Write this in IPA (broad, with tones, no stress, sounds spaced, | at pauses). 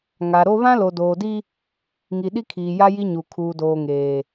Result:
ŋ a˨ ɾ o˦ β ã˦ l o˨ d oː˨ d i˦ | ŋ i˨ ɗ i˦ kʰ iː˨ j a˦ j i˦ ɲ u˨ kʰ uː˨ d oː˨ ŋ eː˨